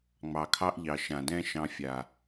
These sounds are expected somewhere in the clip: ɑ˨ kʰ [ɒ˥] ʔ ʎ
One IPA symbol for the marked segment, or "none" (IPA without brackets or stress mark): ɑ˥